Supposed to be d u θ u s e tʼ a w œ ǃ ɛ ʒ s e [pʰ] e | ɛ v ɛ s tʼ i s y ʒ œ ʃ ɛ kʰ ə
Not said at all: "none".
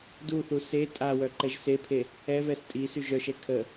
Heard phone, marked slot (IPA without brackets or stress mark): pʰ